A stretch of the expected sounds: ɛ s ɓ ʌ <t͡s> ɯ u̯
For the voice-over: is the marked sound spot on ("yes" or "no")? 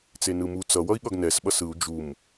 no